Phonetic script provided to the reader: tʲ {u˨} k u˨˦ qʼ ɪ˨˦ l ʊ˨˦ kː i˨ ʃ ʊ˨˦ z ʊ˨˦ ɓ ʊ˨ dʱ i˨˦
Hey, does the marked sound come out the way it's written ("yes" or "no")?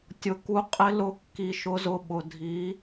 no